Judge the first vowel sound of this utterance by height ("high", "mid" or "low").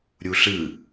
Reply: high